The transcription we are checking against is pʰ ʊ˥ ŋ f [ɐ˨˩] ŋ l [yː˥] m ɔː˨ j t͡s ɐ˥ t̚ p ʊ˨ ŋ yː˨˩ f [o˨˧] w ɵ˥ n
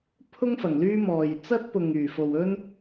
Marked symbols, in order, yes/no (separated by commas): yes, yes, no